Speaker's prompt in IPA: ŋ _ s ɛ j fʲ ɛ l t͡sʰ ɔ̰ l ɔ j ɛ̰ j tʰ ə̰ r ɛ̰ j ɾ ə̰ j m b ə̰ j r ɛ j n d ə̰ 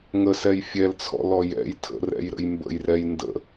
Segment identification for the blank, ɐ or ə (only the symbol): ə